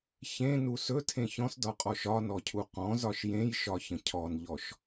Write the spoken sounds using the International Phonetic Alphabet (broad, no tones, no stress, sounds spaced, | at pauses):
ç ẽ n u s ɵ tʰ ẽ ç ɔ̃ s d ɒ qʼ ɔ ʃ ɒ n ɔ cʰ u q ɔ̃ z ɒ ʃ j ẽ j ʃ ɒ ç ə̃ cʰ ɔ n ʎ ɔ ʃ